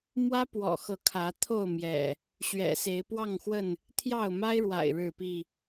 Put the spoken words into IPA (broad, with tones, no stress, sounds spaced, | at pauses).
m w ä˦ p w ɔ̰˨˩ x ɤ˨˦ kʰ ä˨˦ t̪ʰ o˥˨ ʊ̯ m j ɛ̰˨˩ | ɕ ɥ ɛ̰˨˩ s e˨˦ ɪ̯ p w ɑ˥˨ ŋ x w ə˥˨ n | t̪ʰ j ɑ˥˨ ʊ̯ m a˦ ɪ̯ ɻ w a̰˨˩ ɪ̯ ɻ ɻ̩˥˨ p i˥˨